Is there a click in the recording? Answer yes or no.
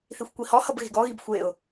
no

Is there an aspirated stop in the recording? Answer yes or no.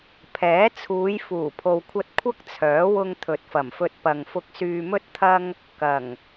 yes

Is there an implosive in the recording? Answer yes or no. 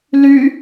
no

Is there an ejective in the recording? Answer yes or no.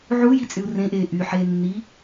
yes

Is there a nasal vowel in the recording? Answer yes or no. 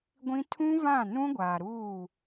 yes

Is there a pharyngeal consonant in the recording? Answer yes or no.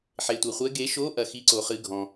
yes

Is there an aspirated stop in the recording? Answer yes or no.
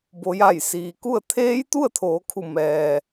yes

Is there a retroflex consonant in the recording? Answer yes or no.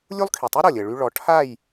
yes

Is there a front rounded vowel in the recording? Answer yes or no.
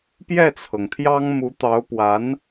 no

